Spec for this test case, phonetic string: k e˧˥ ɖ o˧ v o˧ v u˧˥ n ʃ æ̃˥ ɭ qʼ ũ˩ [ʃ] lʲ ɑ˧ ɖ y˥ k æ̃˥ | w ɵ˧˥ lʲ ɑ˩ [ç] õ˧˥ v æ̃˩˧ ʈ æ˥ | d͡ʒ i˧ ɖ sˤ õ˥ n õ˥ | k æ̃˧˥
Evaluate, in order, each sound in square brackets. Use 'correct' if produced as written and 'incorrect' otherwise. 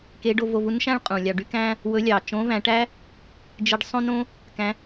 incorrect: none, incorrect: t͡ʃ

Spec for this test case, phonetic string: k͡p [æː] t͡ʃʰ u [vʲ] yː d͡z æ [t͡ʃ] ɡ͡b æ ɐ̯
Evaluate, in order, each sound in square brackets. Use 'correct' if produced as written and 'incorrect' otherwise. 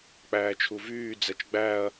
correct, incorrect: v, correct

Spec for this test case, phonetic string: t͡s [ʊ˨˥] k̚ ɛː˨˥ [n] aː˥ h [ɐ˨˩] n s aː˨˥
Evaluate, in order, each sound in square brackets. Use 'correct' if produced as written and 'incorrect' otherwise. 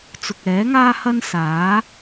incorrect: ʊ˨, incorrect: ŋ, incorrect: ɐ˥

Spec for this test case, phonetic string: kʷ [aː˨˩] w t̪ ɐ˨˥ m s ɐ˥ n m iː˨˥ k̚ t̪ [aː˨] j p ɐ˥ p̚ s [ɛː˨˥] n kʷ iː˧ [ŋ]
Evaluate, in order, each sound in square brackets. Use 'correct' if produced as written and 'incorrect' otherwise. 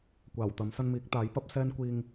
correct, incorrect: aː˨˥, incorrect: ɛː˥, correct

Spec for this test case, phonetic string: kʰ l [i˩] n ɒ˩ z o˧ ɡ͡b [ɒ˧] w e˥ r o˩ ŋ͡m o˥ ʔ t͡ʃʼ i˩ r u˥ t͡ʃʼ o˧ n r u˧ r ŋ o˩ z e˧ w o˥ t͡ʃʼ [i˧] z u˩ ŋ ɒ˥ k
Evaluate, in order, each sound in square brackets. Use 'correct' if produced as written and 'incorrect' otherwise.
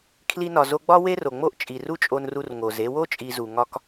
incorrect: i˧, incorrect: ɒ˥, correct

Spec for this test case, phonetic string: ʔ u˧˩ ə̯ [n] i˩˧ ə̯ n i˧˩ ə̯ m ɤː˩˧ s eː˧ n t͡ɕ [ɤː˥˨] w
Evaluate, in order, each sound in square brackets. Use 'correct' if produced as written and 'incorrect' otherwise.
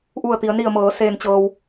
incorrect: t̪, incorrect: ɤː˧

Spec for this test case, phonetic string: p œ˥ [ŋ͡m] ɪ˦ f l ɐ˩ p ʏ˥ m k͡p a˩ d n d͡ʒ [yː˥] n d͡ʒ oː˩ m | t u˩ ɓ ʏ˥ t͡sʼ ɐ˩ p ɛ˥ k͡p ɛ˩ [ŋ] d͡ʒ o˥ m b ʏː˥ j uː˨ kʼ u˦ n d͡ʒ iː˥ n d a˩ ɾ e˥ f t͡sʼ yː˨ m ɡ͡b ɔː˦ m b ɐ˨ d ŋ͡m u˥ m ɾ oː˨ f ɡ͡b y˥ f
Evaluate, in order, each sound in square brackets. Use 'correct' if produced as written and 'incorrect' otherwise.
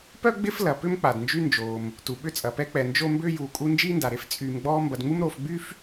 incorrect: ɡ͡b, incorrect: y˥, incorrect: n

